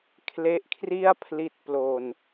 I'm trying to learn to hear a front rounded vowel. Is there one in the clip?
no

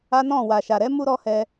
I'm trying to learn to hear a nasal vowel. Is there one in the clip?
yes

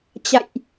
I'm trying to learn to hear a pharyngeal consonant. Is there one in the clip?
no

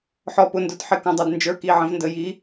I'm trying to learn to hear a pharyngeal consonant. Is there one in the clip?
yes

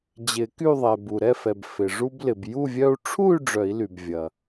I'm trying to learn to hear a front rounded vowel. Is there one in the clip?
yes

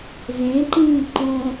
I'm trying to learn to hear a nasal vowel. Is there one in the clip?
yes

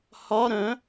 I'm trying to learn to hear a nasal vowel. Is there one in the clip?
yes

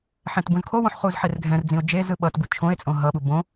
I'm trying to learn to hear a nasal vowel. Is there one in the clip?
yes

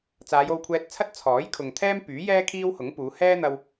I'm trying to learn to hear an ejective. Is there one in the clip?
no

